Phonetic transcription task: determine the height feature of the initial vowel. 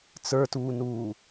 mid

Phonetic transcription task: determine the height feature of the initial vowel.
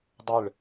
high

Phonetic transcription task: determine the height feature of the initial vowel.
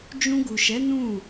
high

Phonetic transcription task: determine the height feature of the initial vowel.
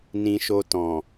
high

